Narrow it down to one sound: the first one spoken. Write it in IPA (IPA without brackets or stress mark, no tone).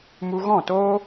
m